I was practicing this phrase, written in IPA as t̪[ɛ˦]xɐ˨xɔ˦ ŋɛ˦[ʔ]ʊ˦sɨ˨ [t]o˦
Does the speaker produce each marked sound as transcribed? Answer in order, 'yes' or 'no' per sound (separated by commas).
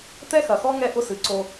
yes, yes, no